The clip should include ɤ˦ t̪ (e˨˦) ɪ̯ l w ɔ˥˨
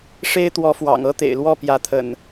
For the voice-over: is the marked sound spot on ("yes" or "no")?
no